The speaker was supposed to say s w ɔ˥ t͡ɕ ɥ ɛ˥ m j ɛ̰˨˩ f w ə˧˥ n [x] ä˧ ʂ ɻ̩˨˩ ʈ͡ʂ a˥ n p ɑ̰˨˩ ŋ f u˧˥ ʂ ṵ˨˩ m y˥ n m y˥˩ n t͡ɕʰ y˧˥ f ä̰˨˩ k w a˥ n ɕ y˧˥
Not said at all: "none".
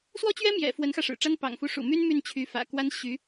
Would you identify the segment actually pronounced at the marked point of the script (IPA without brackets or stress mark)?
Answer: x